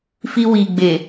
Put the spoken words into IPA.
fi˧wi˨ɡ͡be˨

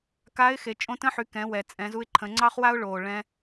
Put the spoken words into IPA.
kaː˧˥ɪ̯xe˩˧ t͡ʃʼõ˧tə̃˧˥ħy˩˧ kɛ̃˩˧ wɛ˩t͡sʼɛ̃˩˧ zu˧ɪ̯ǃʰə̃˩˧ŋ͡ǀɑ˥χ wa˥ʊ̯ɭoː˩ ɭɛ̃˧

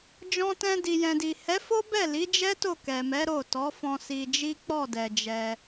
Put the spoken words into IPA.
d͡ʒɔ̃˧tɛ̃˧ di˨jɛ̃˨di˨ hɛ˨˦fo˦ bɛ˦˨li˨˦d͡ʒɛ˦ to˦˨kɛ˨mɛ˨˦ ɾo˦˨ tɔ˨˦fɔ̃˧ si˧d͡ʒi˦ k͡pɔ˦˨dɛ˨ d͡ʒɛ˧

